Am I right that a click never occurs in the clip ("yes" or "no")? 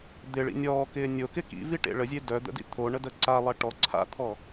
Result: no